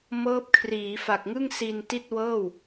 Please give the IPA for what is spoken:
mɤː˦˥p̚kʰriː˩˦fa˨˩k̚ŋɯ˥˩ŋ si˧nti˥˩t̚ wɤː˥˩w

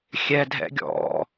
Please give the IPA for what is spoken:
xʲɛ dʱɛ̰ɡʲɔ̰

